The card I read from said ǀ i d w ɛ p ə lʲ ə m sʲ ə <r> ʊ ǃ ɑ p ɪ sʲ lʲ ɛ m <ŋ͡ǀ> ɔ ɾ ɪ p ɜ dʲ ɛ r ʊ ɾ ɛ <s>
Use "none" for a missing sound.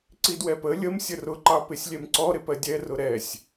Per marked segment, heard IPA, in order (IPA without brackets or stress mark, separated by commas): r, ǀ, sʲ